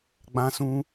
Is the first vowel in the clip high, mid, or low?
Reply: low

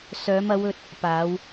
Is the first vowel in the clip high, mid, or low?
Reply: mid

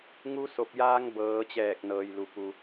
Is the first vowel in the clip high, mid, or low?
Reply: high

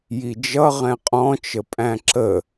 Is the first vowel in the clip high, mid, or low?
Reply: high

